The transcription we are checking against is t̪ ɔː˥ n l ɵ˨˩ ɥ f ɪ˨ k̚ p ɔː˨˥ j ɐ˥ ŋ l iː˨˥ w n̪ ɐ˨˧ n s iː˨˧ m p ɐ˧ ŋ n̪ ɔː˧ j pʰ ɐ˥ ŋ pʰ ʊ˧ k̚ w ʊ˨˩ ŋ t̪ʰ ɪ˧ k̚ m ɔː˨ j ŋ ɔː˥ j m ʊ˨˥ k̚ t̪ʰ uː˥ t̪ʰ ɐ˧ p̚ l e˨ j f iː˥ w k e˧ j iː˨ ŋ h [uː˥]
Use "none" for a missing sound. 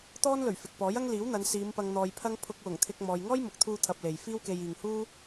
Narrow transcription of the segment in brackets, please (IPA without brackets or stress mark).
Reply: uː˥